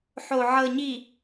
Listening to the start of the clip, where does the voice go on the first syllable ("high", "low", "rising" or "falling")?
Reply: low